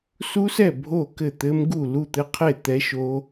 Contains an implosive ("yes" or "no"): no